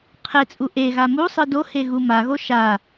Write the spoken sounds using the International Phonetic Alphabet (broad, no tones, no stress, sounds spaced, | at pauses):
qʰ e t͡sʼ u ʔ e ɣ a m u sˤ ɯ d o h e ɣ u m a ɣ o ʃ a